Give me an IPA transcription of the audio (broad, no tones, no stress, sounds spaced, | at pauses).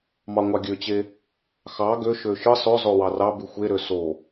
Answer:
m ɑ ŋʷ ɑ ɡʲ ø t͡ɕ e | x ɑ ɡ ø ʃ ø ʃ ɯ sˤ ø zˤ o w ɑ r ɑ b y xʷ e ɾ ø s o